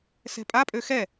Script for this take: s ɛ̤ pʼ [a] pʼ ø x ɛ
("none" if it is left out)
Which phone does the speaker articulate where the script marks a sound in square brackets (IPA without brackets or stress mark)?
a